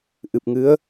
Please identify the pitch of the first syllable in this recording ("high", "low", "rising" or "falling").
low